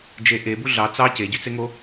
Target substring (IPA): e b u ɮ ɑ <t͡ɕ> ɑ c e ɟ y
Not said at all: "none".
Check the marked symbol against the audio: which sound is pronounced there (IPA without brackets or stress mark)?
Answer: t͡s